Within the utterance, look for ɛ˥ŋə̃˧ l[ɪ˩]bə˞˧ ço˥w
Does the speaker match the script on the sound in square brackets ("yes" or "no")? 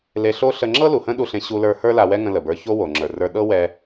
no